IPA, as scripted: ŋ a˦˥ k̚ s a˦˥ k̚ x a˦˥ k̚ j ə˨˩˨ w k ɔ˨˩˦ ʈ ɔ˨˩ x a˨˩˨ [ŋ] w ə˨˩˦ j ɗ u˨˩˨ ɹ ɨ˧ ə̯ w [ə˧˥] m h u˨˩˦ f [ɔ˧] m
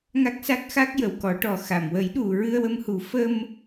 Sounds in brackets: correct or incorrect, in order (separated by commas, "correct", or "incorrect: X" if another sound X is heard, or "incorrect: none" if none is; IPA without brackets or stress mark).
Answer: incorrect: m, incorrect: ə˧, incorrect: ə˧